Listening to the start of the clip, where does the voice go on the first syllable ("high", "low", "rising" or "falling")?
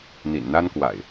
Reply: low